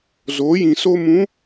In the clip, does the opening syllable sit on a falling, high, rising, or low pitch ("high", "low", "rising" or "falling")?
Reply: rising